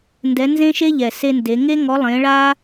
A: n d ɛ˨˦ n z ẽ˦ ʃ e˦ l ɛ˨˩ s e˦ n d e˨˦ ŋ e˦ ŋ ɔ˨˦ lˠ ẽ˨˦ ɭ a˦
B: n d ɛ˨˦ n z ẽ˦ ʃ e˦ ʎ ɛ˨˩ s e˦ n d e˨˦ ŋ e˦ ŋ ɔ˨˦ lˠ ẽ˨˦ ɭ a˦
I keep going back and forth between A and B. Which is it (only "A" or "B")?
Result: B